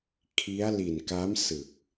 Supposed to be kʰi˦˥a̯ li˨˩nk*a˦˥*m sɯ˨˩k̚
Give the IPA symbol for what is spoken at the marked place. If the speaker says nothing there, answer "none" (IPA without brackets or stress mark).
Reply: a˦˥